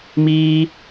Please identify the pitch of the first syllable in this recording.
high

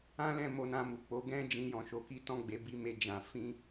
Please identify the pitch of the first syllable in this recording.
high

